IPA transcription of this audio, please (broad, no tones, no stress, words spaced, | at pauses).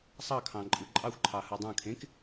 sˤɑkʰɑ̃ ǃʼɯǃʼɑxʷǃʰɑ hɯdˤɑ̃kʰẽk